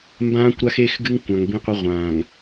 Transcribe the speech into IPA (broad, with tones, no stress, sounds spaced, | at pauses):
m b ãː˦ kʷ ɾ a˦ x e˦ x ɡ ɨ˦ ŋ kʷ ã˨ ŋ b ĩ˦ qʷ ɘ˦ ʁʷ ãː˨ ŋ